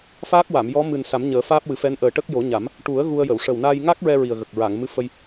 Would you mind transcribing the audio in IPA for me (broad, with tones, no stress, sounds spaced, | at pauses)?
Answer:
f aː˦˥ k̚ w a˨˩˨ m j ɔ˧˥ m ɨ˨˩ n s a˨˩˦ m ɲ əː˨˩˦ f aː˦˥ p̚ w ɨ˨˩˦ f ɛ˧˥ n ʔ əː˨˩ ʈ ə˦˥ k̚ j o˨˩˦ ɲ a˨˩˦ m | ʈ u˨˩˦ ə̯ ɣ u˧ ə̯ j ə˨˩˨ w ʂ ə˨˩ w n aː˧ j ŋ a˦˥ k̚ ɹ ɛ˧ ɹ i˨˩ ə̯ ɣ ə˨˩ k̚ ɹ a˨˩˨ ŋ m ɨ˧˥ f ə˧ j